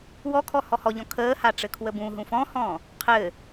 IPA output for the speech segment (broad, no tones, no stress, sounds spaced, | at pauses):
w ɔ kʰ ɔ h ɔ h ɔ ʎ ɔ̃ kʰ əː h a ʈ͡ʂ ɘ kʰ w ə b ũ ɦ ũ f ɔ̃ h ɔ̃ | qʰ ɘ